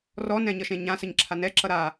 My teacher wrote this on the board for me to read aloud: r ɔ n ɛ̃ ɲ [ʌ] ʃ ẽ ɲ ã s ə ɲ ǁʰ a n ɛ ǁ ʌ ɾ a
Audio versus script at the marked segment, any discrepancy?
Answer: no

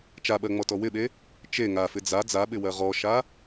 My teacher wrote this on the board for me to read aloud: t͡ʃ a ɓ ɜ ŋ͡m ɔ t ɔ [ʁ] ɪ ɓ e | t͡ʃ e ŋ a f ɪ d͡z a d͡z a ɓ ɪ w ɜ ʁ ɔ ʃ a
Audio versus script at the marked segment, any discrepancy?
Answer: yes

